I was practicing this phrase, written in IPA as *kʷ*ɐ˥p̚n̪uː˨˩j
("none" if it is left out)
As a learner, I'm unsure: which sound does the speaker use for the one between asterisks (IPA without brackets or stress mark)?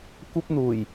kʷ